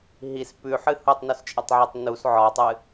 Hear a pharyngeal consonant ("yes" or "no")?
yes